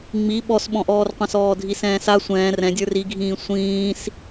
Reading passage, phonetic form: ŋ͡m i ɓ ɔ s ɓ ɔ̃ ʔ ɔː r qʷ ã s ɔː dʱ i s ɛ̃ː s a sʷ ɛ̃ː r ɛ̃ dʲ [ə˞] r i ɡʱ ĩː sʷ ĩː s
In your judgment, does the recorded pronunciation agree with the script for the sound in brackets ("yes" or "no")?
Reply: yes